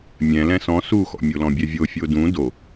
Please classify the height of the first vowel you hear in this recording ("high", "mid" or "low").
mid